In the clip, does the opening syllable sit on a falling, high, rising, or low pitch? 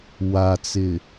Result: low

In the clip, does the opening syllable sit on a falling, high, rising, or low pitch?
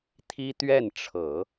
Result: high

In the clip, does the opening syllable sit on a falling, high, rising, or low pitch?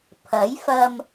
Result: rising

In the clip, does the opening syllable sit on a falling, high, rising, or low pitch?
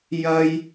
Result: high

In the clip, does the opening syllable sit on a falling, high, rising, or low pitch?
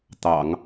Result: low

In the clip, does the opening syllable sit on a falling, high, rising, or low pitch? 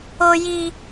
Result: high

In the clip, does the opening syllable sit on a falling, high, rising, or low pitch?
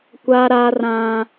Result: high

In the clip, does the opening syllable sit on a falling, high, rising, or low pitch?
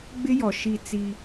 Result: high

